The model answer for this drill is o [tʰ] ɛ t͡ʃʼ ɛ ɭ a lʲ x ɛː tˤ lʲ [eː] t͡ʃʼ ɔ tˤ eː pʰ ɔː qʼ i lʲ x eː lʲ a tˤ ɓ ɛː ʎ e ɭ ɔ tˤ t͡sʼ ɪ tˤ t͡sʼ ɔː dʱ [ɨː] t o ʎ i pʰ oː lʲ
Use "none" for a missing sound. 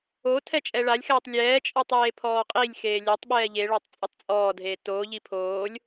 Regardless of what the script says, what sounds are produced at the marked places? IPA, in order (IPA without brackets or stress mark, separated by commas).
tʰ, ɛː, eː